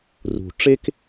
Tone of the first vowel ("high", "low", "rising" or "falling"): low